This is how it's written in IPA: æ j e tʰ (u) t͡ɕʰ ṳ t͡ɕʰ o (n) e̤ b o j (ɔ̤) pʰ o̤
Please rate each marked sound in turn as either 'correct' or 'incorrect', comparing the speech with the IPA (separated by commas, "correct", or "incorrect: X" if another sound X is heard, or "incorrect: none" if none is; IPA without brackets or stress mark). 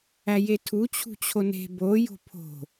correct, correct, incorrect: o̤